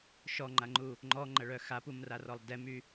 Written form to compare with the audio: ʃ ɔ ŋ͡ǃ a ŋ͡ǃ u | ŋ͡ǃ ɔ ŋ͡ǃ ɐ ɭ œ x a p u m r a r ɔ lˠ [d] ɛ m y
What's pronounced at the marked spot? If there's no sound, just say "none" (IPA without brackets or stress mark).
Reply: d